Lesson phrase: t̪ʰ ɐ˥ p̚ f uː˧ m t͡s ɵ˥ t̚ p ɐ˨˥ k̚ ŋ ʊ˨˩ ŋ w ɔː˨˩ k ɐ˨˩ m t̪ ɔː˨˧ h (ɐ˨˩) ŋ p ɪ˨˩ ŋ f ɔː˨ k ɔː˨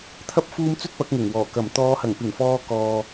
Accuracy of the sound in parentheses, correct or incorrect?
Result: correct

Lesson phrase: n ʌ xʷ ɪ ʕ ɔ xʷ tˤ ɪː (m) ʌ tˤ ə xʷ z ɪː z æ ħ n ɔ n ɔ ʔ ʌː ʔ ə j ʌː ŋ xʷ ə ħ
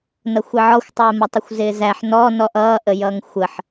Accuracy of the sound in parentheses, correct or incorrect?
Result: correct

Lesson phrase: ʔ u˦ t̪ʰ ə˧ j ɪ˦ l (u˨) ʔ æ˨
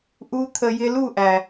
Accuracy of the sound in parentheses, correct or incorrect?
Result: incorrect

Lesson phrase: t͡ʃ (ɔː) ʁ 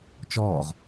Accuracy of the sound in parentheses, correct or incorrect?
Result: correct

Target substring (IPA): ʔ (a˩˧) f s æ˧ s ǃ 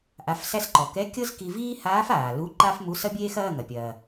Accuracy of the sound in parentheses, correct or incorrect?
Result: correct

